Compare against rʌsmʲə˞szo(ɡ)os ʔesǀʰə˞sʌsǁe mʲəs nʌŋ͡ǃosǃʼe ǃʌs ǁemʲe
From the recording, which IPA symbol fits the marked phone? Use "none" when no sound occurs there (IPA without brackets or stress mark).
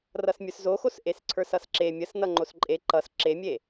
x